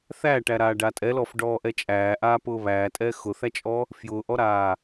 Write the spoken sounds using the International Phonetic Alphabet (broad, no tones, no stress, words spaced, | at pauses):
θæʈæɾaːɖa tʼɛlɔfɖɔːʔɛ t͡ʃʼæːʔaːpʊː βæːtʼɛː xʊθæt͡ʃʼɔ | fjʊːʔɔɾaː